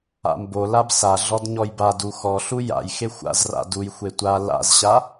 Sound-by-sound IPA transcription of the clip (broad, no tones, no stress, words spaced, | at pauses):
a̰mbolab saɮɔd ɲɔjbadu xɔɬu ja̰j xexʷa̰zra̰ dujxʷe tʷa la̰zɕa